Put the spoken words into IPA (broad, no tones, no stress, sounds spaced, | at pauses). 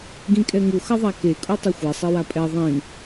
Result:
ɡ ĩ kʼ ɛ ŋ u x ʌ ðˤ a k e kʼ u tˤ o xʷ ɛ sˤ i w a pʼ ɛ ðˤ ĩ